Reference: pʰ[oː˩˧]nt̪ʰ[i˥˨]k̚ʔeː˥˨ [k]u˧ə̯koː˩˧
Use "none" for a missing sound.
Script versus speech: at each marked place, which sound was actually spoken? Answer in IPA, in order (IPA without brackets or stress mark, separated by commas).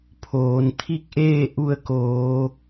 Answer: oː˩˧, i˥˨, ʔ